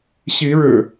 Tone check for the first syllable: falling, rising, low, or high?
rising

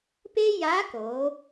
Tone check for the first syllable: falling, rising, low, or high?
high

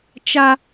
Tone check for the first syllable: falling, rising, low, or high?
high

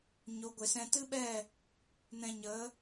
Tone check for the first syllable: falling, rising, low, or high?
rising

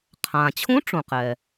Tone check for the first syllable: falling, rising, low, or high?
low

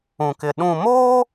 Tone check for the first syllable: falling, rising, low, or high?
low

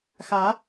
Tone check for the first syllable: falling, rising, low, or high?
rising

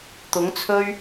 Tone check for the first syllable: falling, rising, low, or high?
rising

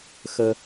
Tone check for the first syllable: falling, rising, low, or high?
high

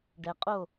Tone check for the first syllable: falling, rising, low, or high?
low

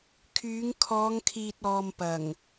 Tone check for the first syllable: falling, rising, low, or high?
rising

